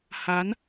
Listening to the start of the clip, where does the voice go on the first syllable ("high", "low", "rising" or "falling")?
rising